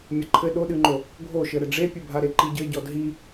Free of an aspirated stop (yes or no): no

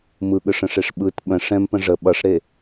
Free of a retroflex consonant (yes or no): no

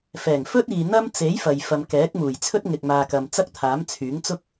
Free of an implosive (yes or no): yes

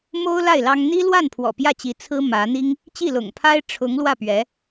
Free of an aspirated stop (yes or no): no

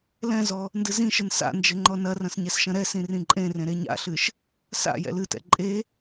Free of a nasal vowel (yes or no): no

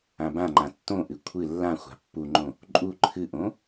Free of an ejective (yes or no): no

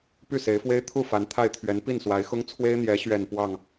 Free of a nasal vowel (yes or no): yes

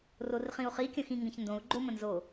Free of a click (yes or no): no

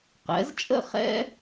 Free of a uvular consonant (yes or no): no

